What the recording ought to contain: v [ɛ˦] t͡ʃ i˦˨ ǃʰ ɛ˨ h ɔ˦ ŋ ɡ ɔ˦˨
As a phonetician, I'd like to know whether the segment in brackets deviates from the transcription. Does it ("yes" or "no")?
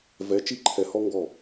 yes